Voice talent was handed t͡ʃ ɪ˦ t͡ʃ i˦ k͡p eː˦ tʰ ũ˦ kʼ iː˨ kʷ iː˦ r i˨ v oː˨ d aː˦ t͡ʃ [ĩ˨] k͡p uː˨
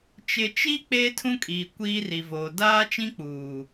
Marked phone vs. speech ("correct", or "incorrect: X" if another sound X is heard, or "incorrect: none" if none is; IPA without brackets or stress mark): incorrect: ĩ˦